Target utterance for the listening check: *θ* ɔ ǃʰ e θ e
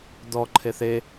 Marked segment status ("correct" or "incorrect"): incorrect